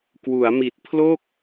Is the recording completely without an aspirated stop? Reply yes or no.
no